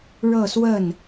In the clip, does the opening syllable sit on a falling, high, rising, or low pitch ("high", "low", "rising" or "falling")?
falling